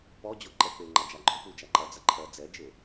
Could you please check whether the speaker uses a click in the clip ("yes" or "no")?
yes